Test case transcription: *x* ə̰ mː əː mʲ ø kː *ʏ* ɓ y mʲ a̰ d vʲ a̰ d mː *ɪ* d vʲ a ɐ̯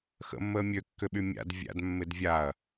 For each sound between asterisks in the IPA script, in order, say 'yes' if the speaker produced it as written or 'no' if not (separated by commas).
yes, yes, yes